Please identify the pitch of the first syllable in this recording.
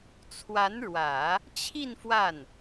rising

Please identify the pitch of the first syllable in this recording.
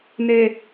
low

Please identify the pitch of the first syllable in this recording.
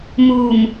low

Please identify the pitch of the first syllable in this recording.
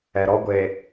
low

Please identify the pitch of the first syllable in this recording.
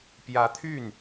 rising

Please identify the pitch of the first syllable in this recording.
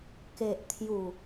low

